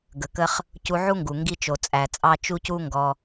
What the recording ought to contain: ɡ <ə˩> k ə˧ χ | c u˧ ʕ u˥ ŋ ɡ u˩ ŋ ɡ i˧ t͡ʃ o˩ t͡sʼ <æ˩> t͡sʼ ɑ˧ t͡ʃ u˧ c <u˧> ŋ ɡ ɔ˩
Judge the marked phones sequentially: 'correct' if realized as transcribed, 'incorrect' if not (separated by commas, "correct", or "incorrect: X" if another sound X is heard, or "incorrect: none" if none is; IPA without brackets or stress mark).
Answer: correct, correct, correct